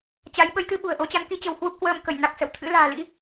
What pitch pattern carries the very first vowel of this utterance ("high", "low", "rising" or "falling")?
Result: rising